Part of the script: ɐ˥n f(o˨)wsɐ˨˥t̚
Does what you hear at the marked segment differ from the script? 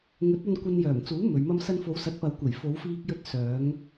yes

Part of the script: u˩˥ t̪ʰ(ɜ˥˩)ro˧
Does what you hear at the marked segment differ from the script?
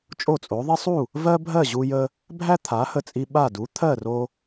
no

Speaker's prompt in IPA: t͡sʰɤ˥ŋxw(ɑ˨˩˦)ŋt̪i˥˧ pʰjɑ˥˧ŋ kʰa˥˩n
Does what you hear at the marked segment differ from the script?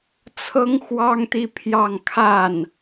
yes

